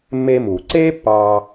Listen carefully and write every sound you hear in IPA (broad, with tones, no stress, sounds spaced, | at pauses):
mː e˧ m uː˩ ǀ eː˥ pː ɑː˧